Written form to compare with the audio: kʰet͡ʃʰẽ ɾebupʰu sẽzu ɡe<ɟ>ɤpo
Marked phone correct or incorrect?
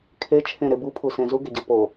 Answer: correct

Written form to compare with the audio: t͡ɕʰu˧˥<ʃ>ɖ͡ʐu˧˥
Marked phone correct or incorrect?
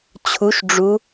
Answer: correct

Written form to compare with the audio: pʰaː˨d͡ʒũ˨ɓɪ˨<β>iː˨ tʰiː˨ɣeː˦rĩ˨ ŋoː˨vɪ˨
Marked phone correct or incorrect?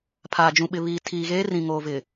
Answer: correct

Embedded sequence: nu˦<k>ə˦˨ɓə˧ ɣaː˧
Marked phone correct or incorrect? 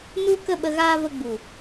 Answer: correct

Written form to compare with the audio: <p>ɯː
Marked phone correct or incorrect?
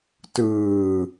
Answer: incorrect: t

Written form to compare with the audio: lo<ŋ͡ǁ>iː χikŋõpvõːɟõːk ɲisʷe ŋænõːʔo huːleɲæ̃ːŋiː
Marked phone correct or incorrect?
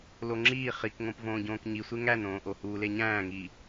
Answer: correct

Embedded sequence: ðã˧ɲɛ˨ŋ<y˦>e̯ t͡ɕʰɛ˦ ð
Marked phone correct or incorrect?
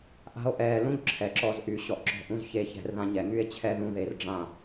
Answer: correct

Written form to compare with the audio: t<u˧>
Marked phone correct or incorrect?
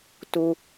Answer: correct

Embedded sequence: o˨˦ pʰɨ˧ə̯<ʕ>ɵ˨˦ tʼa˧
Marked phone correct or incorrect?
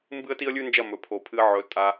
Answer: correct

